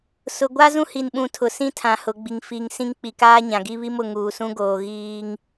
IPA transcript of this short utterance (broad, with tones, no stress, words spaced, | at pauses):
sʊ˨ɡʷa˦ zũ˦hi˨nɓũ˨ tʰʊ˨sĩ˦tʰã˨ hʊ˨ɡ͡bi˨ŋ fiː˨ŋsĩ˦ŋk͡pi˨ kaː˦ɲã˨ɡi˦ βi˦mʊ˨ŋuː˨sũ˦ ɡoː˨ ɣiː˦ŋ